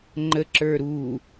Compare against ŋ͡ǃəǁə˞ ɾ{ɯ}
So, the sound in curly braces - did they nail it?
no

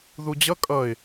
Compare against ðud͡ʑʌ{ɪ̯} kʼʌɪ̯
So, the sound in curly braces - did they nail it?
no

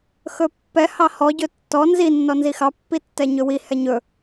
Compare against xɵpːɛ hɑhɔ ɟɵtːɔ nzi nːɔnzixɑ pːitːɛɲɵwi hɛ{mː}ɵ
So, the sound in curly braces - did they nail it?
no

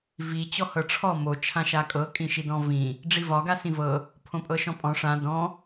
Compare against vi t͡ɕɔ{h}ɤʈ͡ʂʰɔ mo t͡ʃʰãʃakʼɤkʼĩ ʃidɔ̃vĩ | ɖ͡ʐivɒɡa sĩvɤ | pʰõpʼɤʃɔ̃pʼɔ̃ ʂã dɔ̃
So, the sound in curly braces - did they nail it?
yes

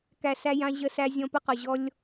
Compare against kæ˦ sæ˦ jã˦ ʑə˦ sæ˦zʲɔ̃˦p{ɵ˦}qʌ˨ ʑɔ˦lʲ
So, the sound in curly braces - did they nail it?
no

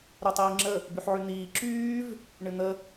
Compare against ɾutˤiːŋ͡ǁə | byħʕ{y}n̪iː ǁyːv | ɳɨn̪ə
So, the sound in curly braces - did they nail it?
yes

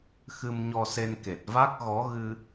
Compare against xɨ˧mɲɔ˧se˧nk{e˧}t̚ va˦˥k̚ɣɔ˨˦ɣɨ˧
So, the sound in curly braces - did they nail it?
no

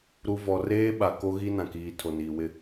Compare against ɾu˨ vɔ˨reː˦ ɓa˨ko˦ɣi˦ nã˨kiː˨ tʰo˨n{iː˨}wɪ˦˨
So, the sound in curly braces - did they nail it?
yes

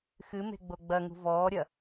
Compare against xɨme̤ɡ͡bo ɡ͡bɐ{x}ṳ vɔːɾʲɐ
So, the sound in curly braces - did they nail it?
no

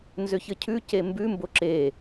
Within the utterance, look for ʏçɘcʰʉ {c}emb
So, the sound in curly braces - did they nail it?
yes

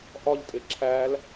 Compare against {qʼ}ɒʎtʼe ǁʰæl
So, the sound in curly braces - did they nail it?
no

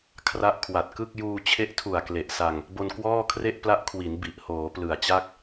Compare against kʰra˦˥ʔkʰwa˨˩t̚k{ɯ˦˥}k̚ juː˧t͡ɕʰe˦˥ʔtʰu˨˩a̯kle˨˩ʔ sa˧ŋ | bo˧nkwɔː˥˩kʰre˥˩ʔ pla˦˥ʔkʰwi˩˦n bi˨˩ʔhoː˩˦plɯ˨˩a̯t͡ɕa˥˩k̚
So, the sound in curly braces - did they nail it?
no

